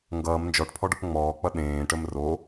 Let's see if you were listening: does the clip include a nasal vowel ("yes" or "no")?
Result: yes